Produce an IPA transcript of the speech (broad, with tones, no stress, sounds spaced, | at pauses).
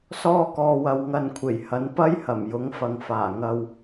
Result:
s ɔː˥ k ɔː˧ w ɐ˧ w ŋ ɐ˧ n kʷʰ e˨˩ j h ɐ˨˥ n p ɐ˥ j h ɐ˨˩ m j ʊ˨˥ ŋ f ɐ˨ ŋ f aː˨˩ ŋ ɐ˧ w